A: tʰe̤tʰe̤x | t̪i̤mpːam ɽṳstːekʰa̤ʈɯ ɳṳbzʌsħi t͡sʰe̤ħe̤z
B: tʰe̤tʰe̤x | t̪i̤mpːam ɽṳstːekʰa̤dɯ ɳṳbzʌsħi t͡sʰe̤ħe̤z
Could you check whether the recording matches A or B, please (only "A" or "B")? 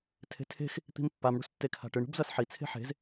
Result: A